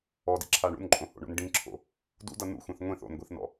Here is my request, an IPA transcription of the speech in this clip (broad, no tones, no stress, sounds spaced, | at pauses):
ɔ d ḭ ǁʰ a ɳ ṵ n ǃʼ õ h o̰ ɳ o̰ n ɖ ĩ ǁʰ o̰ | d ṵ d ʌ n ṵ xʷ ĩ θ ŋʷ ĩ θ o̰ n ɡʷ i θ n ɔ̰